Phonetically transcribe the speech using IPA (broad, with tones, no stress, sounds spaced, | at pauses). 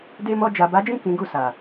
d e˧ m ɔ˧ d͡ʒ a˨ b a˨˦ d͡ʒ ĩ˦˨ k ĩ˨˦ ɡ u˦˨ s a˨